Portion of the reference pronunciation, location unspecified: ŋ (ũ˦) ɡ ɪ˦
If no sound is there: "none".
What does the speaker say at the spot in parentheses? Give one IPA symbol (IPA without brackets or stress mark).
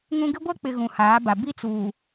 ũ˦